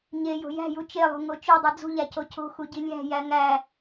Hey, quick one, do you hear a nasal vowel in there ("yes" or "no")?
no